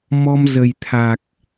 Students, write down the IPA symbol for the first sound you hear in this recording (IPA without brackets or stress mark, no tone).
m